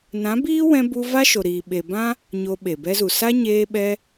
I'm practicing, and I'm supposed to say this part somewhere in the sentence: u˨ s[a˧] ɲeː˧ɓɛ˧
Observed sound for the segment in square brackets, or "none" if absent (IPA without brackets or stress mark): a˦